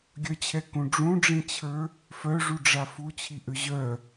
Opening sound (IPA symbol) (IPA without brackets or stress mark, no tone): ɡʲ